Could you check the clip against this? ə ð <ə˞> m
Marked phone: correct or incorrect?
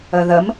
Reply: incorrect